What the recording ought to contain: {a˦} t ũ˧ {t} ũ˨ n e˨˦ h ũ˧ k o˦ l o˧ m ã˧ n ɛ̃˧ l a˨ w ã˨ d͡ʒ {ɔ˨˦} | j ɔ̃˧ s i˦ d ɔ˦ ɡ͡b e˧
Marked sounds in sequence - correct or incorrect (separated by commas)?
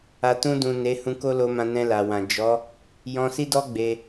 incorrect, incorrect, correct